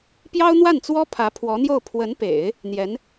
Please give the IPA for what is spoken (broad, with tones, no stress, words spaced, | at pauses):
pjɑ˥ʊ̯n̪wa˥˩nt͡swɔ˥ pʰä˧˥pʰwɔ˧˥n̪jo˥˩ʊ̯ pʰwə˧˥npḛ˨˩˦ɪ̯ | n̪jɛ˧˥n